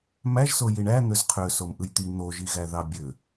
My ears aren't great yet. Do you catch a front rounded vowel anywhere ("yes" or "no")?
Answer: yes